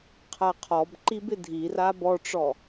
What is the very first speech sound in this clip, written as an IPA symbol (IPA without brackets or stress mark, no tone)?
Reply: qʰ